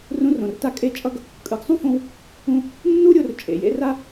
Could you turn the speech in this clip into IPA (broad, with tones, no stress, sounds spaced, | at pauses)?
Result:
r ũ˧ r õ˩ r t a˧˥ kʼ e˧ t͡ʃʼ ʌ˥ ɡ | kʼ ɯ˩˧ ɡ sˤ ũ˥ f õ˧ w | ũ˧ | nː u˥ ɾʲ o˩˧ r t͡ʃʼ ḛ˩ j ḛ˥ r a˥